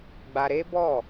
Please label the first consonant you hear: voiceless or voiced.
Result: voiced